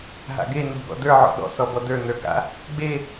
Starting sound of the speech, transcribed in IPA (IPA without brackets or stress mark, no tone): ɦ